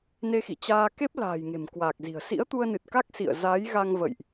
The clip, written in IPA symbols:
n e˧ x ḭ˧˨ t͡ɕ aː˧ k e˦˥ p̚ l a̤ː˨˩ j ŋ e̤˨˩ m k w aː˨˩ k̚ z i̤˨˩ ə̯ s ḭ˧˥ ə̯ t̪ u˧ ə̯ n ɨ˨˩ t̚ k a˦˥ k̚ s ḭ˧˨ ə̯ z aː˨˦ j ɣ a˧ ŋ v ə̰˧˨ j ʔ

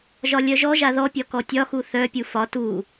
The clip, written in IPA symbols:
ʒ ɒ lʲ œ ʒ ɔ ʒ a ð ɔ pʲ ɒ k ɔ tʲ ɒ x u θ œ pʲ u f ɒ t u

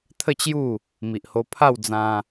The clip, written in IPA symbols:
t̪ʰ ə˥˧ t͡ɕ j u˥˧ | m i˨ ʔ h o˧ pʰ a˥˧ w d͡z ã˧

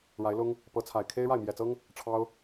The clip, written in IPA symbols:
ɻ a˨˦ ɪ̯ l ʊ˦ ŋ | p ɤ˨˦ t͡sʰ a˨˩ ɪ̯ kʰ e˦ ɪ̯ ɻ a˥˨ ɪ̯ m j ɛ˨˩ t͡s ɤ˦ ŋ | ʈ͡ʂʰ ɑ˦ ʊ̯

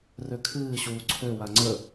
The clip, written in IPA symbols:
r ø kʰ ɨː ɕ uː ǀʰ ø w a ŋ͡ǀ ə

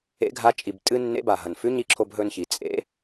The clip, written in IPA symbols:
ḛ˧˥ ɡʱ a˧˥ t͡ʃʼ i˩ b tʼ ɨ˥ nː ḛ˧˥ b a˩ ɦ ɐ˩ n f ʉ˧˥ ɲ i˧˥ ǁʰ o˧ b ɦ ɵ˧ n ç i˩ t͡sʼ ḛ˧˥

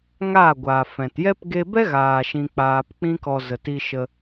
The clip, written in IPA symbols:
ŋ aː˦˨ ɡʷ aː˨ f ɛ̃˨ t j ɛ˦ p ɡ e˧ b ɛ˦ ɣ aː˨ ʃ ĩ˧ k͡p aː˧ p k͡p ĩ˦ k ɔ˧ z ə˨ t i˧ ʃ ə˧

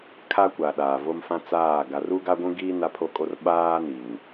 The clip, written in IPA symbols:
kʰ a˦ kʷ a˨ ɗ aː˨ v o˦ m f ã˦ t͡s aː˦˨ ɡ a˨ r u˦ ɡ a˦ ɡʷ ũ˦ ɡ iː˦ n a˦ pʰ o˦ kʼ o˦ r ɓ aː˦ n i˨ ŋ

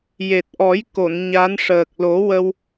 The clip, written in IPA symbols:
j e˨˩ t̚ ʔ ɔ˨˩˦ j k o˨˩˨ n ɲ a˧˥ n ʂ əː˨˩ k̚ l o˨˩˦ w ə˧ w

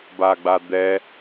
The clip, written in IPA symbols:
b a ɡ͡b a d̪ ɛ

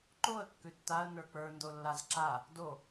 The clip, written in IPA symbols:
ǃ o ə̯ kː ʉ tː a ə̯ n ə˞ k͡p ə˞ n d o lː a z ǁ a | d o

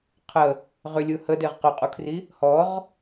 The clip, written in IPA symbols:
qʰ ə | ʁ ʏ lʲ ɯ h ə d e ʁ q ʏ qʼ u kʰ r i | h ɔ ʁ

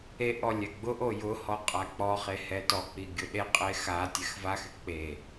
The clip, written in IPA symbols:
e ʔ ɔ lʲ ɛ ɡ͡b ʊ ʔ o j ʊ h ɔ qʼ a k͡p ɔ χ e h ɛ t ɔ k͡p i ɡʲ ʊ ɗ e qʼ e x a tʲ ɛ x v a x ɪ k͡p e

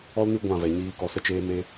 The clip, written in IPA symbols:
ɔ˦ l n ɨ˦ ɡʷ ã˦˨ v ɛ˨ ɲ iː˧ k ɔ˧ s ə˦ t͡ʃ eː˦ m e˦

